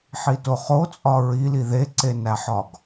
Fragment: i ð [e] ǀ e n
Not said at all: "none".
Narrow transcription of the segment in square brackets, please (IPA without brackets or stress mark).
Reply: e